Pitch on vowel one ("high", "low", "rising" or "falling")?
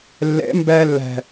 rising